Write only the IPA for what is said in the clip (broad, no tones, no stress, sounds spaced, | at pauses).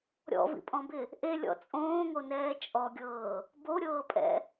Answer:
ɾʲ ɔ̰ v ḭ pʼ ɔ̃ b ɪ | ʔ e lʲ ɔ̰ t͡sʼ õː ŋ o n ɛː t͡ʃʼ ɔ ɡʲ ɤː | b o ɾʲ ɤː pʼ ɛ̰